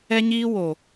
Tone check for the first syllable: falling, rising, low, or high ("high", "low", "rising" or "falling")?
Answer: high